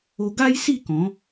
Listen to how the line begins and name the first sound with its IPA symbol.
o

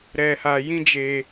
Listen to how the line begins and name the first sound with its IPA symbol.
ɾ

